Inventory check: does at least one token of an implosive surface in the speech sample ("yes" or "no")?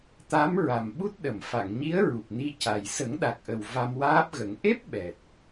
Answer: yes